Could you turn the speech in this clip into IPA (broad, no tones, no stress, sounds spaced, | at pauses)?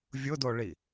vʲ ʊ d o ɭ i